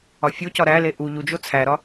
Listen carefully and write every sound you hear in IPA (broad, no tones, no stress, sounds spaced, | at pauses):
ɒ fʲ o c ɒ ɾ æ l e ʔ u ʎ u d͡ʒ o t͡sʰ æ ɾ ɒ